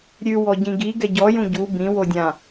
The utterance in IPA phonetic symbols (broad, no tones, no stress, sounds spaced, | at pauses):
ɾʲ ʉ w ɔ ɟ ĩ ɡ i ɡ ɛ ɟ ɔ j ũ ɟ u b ĩ w o dʲ ã